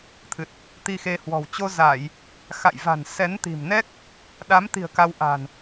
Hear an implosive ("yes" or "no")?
yes